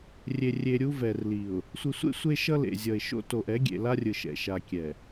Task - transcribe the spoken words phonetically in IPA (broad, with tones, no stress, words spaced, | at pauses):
rʲe˨rʲe˨ ɾʲu˦vɛ˨rli˨ʊ̯ | sʷɯ˨sʷḛ˦ sʷe˦ʃʌ˦lḛ˨ zʲʌ˨ɪ̯ʃo̰˦ to˨ʔ ɛ˨˦ɡʲḛ˨la˦rʲɯ˨ ʃɛ̰˨ʃa˨ kʲɛ˨